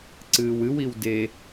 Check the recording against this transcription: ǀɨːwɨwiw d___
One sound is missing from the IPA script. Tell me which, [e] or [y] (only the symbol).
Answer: e